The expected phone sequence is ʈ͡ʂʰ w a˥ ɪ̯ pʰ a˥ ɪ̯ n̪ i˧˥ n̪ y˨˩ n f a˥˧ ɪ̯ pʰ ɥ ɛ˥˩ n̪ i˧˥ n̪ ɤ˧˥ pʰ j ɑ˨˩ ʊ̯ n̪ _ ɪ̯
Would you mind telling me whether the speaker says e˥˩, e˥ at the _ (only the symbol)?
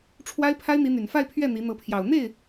e˥˩